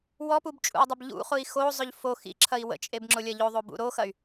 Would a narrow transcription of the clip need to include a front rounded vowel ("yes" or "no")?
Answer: yes